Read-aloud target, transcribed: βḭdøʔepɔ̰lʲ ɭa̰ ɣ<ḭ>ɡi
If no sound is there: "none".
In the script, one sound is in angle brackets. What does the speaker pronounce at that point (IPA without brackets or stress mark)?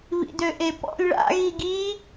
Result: i